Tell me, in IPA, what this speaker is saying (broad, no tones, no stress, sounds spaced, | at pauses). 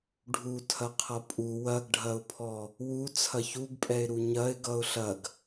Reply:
ɖʱ u tʰ ɐ qʰ ʌ pʼ u w ɐ ɡ ɖʱ ɐ ʊ̯ pʰ ɔ | w u t͡sʰ ɐ ç u ɡ pʼ ɛ ɪ̯ ɾ u ɲ ɐ ɪ̯ ɡ ʌ ʊ̯ ɬ ɐ ɡ